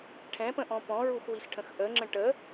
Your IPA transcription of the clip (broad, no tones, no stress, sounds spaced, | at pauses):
ʈʰ ɛ̃ p ə̃ ʔ ɔ̃ p ɔ̃ ɹ u x w i x ʈʰ ə̃ x ʔ ə ŋ͡ǁ ə̃ ʈ ə